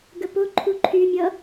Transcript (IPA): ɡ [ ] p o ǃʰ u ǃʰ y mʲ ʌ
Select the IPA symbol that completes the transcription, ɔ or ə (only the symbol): ə